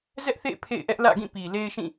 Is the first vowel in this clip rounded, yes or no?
no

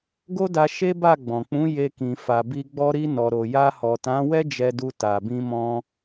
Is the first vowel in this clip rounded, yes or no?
yes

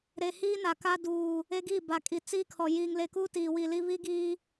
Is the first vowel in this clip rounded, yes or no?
no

